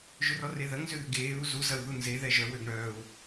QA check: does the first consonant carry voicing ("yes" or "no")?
yes